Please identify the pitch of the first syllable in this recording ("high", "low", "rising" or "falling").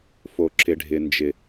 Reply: high